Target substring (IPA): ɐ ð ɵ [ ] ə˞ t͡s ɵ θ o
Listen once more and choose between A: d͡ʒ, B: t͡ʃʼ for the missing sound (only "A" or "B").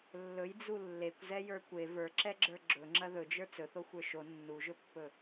A